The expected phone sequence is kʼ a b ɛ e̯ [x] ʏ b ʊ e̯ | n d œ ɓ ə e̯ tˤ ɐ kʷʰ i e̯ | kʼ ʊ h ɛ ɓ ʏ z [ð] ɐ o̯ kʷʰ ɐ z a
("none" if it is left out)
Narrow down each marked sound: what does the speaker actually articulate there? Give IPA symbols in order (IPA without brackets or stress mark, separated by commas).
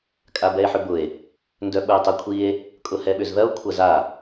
ħ, ð